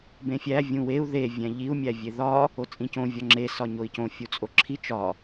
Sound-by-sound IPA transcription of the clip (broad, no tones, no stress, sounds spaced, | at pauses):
b ẽ fʲ æ vʲ ũ w e u̯ ð e vʲ æ̃ ʎ i u̯ mʲ æ vʲ e ð ɒ | o t͡sʼ ĩ c õ vʲ ɒ ŋ͡ǁ e s ɒ ɲ o i̯ c õ fʲ u t͡sʼ o ǁʰ i t͡ʃ ɒ